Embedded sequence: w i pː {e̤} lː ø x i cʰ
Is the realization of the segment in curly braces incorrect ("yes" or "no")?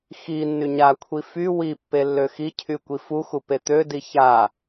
yes